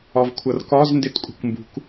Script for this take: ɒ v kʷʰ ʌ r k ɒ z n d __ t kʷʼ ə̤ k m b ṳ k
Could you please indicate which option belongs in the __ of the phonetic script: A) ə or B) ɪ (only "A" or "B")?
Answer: B